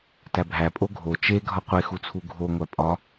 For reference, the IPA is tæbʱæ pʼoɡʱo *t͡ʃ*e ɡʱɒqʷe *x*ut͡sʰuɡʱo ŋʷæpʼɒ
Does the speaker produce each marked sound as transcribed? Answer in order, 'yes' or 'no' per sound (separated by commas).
yes, yes